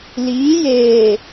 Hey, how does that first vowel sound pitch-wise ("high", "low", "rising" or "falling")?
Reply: rising